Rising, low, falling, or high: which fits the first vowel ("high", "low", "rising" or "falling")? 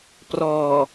low